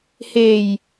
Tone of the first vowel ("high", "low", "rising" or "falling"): low